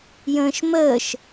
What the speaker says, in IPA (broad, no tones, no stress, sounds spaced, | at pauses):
j ə̃ː ʃ m əː ʃ